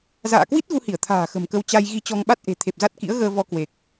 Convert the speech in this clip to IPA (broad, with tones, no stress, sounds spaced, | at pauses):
z a̰ː˧˨ k w i˦˥ t̚ ɣ u˧ h i˧˩ ə̯ t̪ʰ a̤ː˨˩ x ə̤˨˩ m k ə˧ w t͡ɕ a˧ j ɣ i˧ t͡ɕ ɔ˧ ŋ ɓ a˦˥ t̚ ʔ e̤˨˩ t̪ʰ e˨˩ p̚ z a˦˥ t̚ k ḭ˧˥ ə̯ ɣ əː˧ v ɔ˧ k w e˨˩ k̚